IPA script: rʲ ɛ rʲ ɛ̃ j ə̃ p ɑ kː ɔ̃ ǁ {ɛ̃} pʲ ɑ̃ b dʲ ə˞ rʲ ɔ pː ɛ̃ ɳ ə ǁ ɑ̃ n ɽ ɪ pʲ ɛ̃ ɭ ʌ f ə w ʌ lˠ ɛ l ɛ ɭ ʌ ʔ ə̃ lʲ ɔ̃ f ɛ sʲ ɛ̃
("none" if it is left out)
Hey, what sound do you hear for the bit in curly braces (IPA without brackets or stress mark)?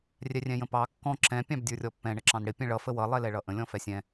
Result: ɛ̃